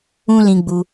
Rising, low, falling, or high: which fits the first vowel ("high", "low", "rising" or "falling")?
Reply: high